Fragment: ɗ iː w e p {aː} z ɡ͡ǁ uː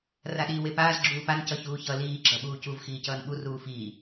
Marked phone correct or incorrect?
correct